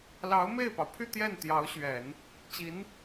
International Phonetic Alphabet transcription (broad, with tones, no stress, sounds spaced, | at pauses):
l ɑ˧˥ ʊ̯ m e˥˩ ɪ̯ p ɑ˩ ʊ̯ pʰ y˥˧ t̪ j ɛ˥˩ n t̪ j ɑ˧˥ ʊ̯ ɕ ɥ ɛ˨˩˦ n | t͡ɕ i˧˥ n